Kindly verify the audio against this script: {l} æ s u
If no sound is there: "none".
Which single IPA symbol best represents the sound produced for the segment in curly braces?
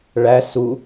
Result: ɭ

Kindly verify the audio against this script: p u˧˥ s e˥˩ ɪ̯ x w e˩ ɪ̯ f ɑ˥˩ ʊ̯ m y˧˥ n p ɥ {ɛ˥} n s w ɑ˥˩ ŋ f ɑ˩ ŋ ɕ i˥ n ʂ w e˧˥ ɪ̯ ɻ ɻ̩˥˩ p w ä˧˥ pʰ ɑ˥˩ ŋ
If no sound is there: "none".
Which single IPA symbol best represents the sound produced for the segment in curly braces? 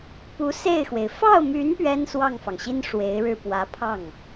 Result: ɛ˥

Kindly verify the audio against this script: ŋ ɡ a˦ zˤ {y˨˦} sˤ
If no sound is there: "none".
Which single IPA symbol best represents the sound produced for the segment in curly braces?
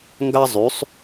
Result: y˨˦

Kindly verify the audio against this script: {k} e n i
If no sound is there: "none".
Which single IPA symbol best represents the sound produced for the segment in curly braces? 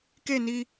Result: k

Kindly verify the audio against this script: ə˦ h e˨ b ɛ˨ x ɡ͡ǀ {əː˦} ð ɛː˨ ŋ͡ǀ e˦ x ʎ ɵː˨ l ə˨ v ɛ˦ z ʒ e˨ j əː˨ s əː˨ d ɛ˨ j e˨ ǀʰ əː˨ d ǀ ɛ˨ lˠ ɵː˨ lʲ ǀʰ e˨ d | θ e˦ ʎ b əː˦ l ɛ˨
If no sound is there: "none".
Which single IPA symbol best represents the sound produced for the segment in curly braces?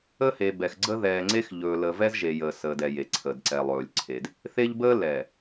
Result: ə˦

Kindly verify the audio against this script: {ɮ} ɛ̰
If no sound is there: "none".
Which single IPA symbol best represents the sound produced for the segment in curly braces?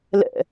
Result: l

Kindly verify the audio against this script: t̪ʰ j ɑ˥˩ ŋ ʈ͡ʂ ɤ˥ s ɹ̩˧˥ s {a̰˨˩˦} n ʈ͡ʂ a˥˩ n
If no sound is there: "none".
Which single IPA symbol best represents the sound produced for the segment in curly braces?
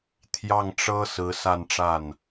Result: a˥˧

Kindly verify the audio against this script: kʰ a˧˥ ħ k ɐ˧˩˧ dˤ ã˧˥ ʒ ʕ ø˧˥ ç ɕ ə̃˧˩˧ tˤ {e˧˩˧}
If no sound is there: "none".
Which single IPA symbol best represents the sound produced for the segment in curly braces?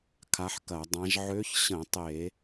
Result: e˧˩˧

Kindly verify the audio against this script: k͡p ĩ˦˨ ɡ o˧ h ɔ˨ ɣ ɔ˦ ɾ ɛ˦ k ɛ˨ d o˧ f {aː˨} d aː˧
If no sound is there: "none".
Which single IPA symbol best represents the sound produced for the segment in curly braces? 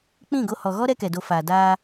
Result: aː˨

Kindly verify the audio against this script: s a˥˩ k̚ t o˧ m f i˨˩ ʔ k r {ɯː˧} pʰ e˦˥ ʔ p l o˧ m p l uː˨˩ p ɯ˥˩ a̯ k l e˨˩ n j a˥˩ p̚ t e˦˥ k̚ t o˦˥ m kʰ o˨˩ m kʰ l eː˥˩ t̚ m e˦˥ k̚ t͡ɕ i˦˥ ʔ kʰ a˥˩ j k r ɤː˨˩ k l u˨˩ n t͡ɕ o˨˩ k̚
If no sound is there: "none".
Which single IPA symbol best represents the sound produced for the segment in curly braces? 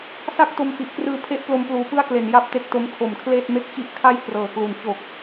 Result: ɯː˧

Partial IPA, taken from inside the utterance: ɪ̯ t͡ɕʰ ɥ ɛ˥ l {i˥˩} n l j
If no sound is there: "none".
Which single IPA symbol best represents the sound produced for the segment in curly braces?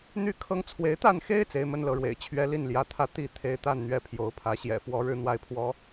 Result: i˥˩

